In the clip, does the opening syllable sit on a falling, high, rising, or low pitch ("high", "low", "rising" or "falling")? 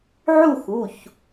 falling